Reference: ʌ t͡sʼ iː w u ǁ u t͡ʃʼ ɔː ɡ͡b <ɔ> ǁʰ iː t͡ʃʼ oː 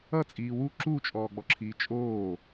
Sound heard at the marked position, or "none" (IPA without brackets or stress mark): ɔ